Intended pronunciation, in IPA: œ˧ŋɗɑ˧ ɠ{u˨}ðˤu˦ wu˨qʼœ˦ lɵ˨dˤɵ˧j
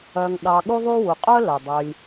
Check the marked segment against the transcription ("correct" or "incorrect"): incorrect